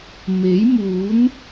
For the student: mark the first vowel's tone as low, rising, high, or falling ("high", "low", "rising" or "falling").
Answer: rising